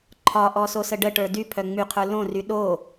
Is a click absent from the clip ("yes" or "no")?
no